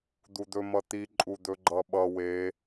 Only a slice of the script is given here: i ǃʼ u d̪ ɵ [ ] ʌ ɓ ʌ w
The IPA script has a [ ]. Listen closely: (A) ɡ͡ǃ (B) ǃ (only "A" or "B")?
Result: A